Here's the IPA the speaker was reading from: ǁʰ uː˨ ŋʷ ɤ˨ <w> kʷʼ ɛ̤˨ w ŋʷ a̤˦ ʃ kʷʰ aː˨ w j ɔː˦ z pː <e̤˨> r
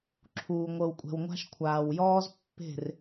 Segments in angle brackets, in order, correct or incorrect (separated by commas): correct, incorrect